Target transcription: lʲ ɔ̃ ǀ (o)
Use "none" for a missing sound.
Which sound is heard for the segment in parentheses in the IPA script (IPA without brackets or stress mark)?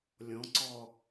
ɔ